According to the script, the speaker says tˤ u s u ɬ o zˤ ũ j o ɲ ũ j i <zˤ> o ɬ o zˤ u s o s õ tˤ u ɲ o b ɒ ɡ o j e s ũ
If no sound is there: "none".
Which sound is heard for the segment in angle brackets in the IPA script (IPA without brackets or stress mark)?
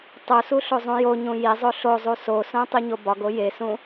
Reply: zˤ